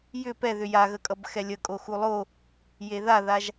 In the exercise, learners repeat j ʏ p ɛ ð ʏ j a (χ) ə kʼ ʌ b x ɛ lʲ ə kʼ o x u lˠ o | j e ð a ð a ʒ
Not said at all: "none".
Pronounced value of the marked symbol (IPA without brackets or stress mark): ɣ